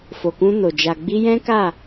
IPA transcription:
f o˨ k ũ˧ n o˨ d͡ʒ a˨ ɡ͡b i˧ j ɛ̃˦ k a˦˨

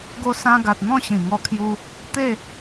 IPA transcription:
ɡ o˧ s ã˧ ɡ a˨ t̚ n̪ ɔ̃˥˧ ɕ ĩ˨˩ ŋ ɔ˧ kʰ j u˧ | t̪ e˥˧

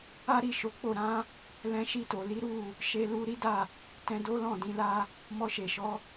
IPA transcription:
a˦ ɾ i˦˨ ʃ o˨˦ k͡p o˦˨ ɾ ã˧ | l ɛ̃˧ ʃ i˧ t o˨ l i˨˦ ɾ u˦˨ | ʃ e˧ l u˧ ɾ i˦ d a˦˨ | t ɛ̃˧ d o˦ l ɔ̃˦˨ d ĩ˧ l a˦ | m ɔ˧ ʃ e˨ ʃ ɔ˧

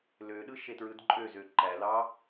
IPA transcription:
l ø ɗ ɯ ʃ e t ɹ ɯ d ǃʼ ø z ø ǃ æ l ɑ

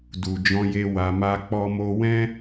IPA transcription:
d u˨ d͡ʒ ɔ̃˧ j e˧ w a˧ m a˦ k͡p ɔ˦ m o˦ w ɛ̃˦

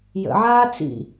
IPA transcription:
j ə̰ ʕ aː t͡s ḭ

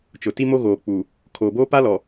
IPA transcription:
t͡ʃ ʊ˨ t i˦ m o˦ ɣ oː˨ k͡p uː˨ | kʰ oː˨ b oː˦ p a˦ l ɔ˨

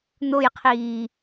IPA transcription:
n̪ o j qʰ iː

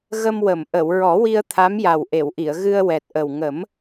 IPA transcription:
ɣ ə˧ m w ə˨˩˨ m ʔ ə˨˩˨ w ɹ ɔ˨˩˦ w i˧ ə̯ t̪ʰ a˧˥ m j a˨˩ w ʔ e˨˩˨ w ʔ i˨˩˨ ə̯ ɣ ɨ˧ ə̯ w ɛ˨˩ t̚ ʔ ə˨˩ w ŋ ə˨˩˦ m

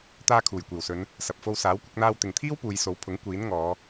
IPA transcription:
t̪ aː˧ kʰ uː˨˩ j kʷ iː˨˩ w s ɵ˨˧ n | s ɐ˨ p̚ f o˧ w s aː˨˥ w kʷ ɪ˧ k̚ n̪ aː˧ w t̪ ɪ˨ ŋ t̪ʰ iː˥ w p uː˨˧ j s o˨˥ w pʰ ʊ˨˥ ŋ kʷ iː˨˥ n ŋ ɔː˨˧

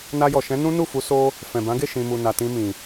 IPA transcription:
n a˧ j ɔ˨ ʃ ɛ̃˨˦ n ũ˦ n u˦˨ f u˨˦ s o˦ | f ɛ̃˨ b ã˨˦ ɡ e˦˨ ʃ ĩ˨ m u˨ n a˨ t ĩ˧ m ĩ˨

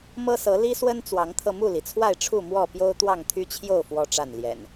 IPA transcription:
m ɤ˦ s ɤ˨˦ l i˦ s w ə˦ n t͡s w ɑ˨˦ ŋ t̪ʰ ɤ˧ m u˥˨ l i˩ t͡sʰ w a˥˨ ɪ̯ ʈ͡ʂʰ u˥˨ m w ɔ˥˨ p j o˦ ʊ̯ t̪ w ɑ˥˨ ŋ t̪ʰ y˦ t͡ɕʰ j o˥˨ ʊ̯ f w ɔ˦ ʈ͡ʂ a˥˨ n l j ɛ̰˨˩ n

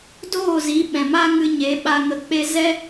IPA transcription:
d oː˦˨ z i˨˦ ɓ ɛ̃˨ m a˦ ŋ ɨ˧ ɲ e˨˦ ɓ a˧ ŋ ə˧ k͡p e˦ z ɛ˦

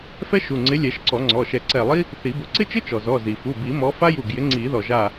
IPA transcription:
f ɛ˥ ʃ u˩˧˩ ŋ͡ǀ ɪ˨˥ lʲ ɛ˨˩˦ ʃ ǀ ɔ˨˩˦ ŋ͡ǀ ɔ˩˧˩ ʃ ɛ˧˩ ǀ ɛ˧˩ lˠ i˥ | θ i˨˩˦ b ʊ˨˩˦ ǀ ɪ˥ t͡ʃ ɪ˥ t͡ʃ ɔ˩ z ɔ˩˧˩ z i˩ f u˩˧˩ b i˨˩˦ m ɔ˨˥ f a˥ j u˧˩ ɡ j ɪ˨˥ ŋ͡ǀ i˨˩˦ ð ɔ˩ ʒ a˧˩

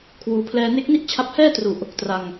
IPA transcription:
kʰ w uː˧ pʰ l ɛː˧ n e˦˥ k̚ n i˥˩ ʔ t͡ɕʰ a˦˥ p̚ h ɛː˥˩ t r u˨˩ ʔ | t r a˧ ŋ

